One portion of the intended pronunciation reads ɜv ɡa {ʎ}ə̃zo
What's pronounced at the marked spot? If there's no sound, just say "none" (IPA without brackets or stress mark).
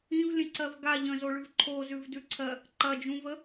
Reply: ʎ